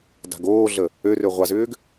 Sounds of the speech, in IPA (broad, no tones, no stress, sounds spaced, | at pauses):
d a̤ ɡ oː ɮ ə | ø r ø ʁʷ a z ʏː ɡ